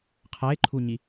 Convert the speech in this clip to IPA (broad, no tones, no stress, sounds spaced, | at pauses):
qʰ æ e̯ ǃʰ u ɲ i